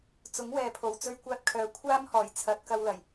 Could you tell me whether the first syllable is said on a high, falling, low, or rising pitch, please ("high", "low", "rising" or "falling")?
rising